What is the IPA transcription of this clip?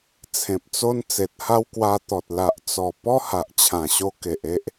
t͡sʰẽ˨p̚t͡so˦n t͡se˨t̚ha˦wkwa˧t̪ɔ˨t̚ la˨ʔt͡sɔ˨˩ pɔ˦ha˨ʔt͡ɕʰã˨˩ɕo˧ ke˨ʔe˦ʔ

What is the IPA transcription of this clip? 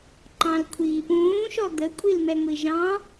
ǃɑ̃lkʷʰiːpũː ʃɔd̪ə kʷʼilmɛŋʷiʒɑ̃

